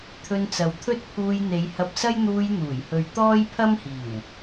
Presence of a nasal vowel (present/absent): absent